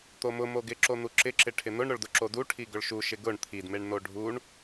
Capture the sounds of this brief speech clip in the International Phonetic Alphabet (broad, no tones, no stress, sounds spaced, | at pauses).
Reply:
t̪ o m ʊ m o ɡ ɪ ǁ o n̪ u ǁ ɪ ǁ ɪ ʈʰ ɪ n̪ ʊ ɳ ɾ ʊ ɭ d ʊ ǁ o d u ʈʰ i ɡ ʊ ɭ ʃ u ʃ ɪ ɡ ʊ ɳ t̪ʰ i d m e ɳ n̪ o ɖʱ u ɳ